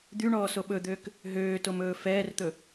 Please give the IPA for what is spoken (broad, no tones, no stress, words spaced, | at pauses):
d̪yɳɔːso ɓɵd̪øːk | ɦøːtomɵː fɛːrt̪ɵ